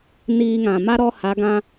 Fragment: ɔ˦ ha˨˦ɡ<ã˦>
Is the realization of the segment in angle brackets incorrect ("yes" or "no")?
no